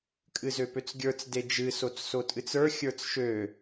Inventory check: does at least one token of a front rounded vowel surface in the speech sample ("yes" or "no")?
yes